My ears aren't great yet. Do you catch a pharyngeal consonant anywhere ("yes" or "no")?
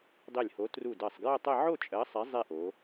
yes